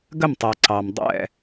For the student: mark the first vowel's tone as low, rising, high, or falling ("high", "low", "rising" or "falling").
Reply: falling